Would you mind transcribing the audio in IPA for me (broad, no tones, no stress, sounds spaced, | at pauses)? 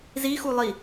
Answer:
z i x u lˠ i